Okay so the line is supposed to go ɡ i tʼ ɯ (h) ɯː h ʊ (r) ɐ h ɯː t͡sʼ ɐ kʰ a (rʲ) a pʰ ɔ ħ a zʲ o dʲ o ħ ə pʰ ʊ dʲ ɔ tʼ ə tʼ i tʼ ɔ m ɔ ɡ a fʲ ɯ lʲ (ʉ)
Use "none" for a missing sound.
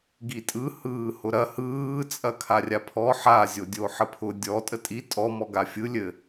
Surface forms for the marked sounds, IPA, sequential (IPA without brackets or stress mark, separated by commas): h, ɾ, rʲ, ɘ